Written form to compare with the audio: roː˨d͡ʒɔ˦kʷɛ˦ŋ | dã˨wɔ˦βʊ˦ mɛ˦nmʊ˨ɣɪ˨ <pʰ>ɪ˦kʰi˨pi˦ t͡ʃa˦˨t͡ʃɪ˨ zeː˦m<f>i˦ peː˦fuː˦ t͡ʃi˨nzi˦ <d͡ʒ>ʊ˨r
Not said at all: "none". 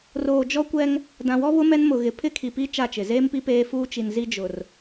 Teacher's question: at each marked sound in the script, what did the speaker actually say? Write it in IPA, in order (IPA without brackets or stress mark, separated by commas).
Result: pʰ, p, d͡ʒ